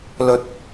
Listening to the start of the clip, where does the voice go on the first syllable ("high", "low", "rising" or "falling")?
rising